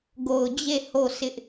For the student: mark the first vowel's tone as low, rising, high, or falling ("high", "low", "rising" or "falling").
low